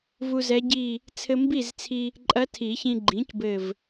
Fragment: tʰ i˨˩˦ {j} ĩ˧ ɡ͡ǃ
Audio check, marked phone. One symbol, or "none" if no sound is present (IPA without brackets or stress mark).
ç